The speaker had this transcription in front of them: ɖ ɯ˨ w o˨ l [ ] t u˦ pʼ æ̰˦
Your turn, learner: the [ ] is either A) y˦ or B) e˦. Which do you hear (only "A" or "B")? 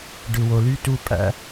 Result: A